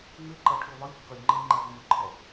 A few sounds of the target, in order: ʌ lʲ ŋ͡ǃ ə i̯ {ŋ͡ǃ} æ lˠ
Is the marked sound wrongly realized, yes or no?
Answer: no